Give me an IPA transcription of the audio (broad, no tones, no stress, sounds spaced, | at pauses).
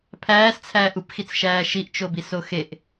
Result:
pʰ æː s t͡sʰ æː ʔ u p x i t͡s ʃ æː ʃ i ʔ t͡ʃ o b i s o x e ʔ